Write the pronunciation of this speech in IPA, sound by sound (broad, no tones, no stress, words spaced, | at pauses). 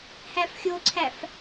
hæfxʲoǀʰæf